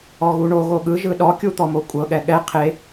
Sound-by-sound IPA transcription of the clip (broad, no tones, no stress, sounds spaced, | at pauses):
ɔ ɣ u ɳ o ɣ o ɠ ɯ ʒ ɯ ɗ ɔ kʲ u t̪ ɔ m o kʷʼ ɤ ɠ ɛ ɠ ɛ qʰ e